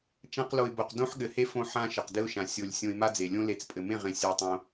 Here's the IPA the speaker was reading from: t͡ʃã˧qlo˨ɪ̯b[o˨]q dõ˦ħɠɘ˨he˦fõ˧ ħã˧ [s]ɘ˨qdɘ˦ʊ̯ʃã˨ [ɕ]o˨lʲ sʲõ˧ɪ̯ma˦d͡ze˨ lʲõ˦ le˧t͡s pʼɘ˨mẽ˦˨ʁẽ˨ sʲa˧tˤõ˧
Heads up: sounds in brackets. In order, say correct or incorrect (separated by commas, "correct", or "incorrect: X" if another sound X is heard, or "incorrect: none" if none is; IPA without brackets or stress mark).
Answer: correct, incorrect: ʃ, incorrect: sʲ